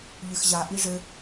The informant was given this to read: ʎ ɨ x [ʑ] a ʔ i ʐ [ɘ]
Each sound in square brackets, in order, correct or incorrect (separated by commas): correct, correct